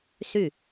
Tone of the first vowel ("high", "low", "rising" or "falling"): falling